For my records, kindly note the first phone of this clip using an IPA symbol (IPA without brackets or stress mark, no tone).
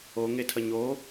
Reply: o